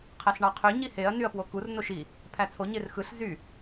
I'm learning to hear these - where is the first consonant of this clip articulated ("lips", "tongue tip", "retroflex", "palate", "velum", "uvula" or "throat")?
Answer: uvula